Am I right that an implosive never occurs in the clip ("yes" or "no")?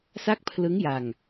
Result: yes